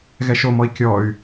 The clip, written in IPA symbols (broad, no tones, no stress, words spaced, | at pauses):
ɣɛʃomɔi̯ kʲɔy̯